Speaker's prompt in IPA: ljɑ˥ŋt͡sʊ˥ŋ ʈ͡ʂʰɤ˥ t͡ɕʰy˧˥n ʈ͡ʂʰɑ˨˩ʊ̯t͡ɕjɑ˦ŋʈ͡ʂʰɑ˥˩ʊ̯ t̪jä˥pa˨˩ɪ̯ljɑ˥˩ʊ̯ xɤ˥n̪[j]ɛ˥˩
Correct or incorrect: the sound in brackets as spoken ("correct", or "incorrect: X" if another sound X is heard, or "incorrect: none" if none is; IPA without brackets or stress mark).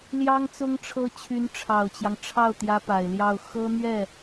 incorrect: ɥ